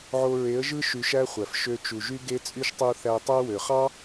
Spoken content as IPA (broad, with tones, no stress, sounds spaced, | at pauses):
ʕ o˧ ɹ e˨˦ ə̯ ʒ ɯ˦ ʃ y˧ ʃ æ˦ χʷ æ˨ f ʃ ø˧ t͡ʃ u˨ ʒ y˦ ɡ e˦ t͡sʼ y˦ ʃ tˤ u˧ θ æ˧ tˤ æ˦ w ø˨ χ ɑ˦